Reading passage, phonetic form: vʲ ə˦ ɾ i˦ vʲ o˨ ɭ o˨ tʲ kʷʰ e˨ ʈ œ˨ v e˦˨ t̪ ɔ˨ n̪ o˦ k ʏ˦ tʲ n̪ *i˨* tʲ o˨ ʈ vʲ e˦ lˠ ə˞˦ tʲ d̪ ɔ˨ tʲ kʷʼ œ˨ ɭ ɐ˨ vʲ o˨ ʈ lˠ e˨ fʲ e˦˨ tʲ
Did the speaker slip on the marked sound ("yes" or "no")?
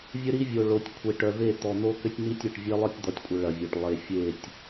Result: yes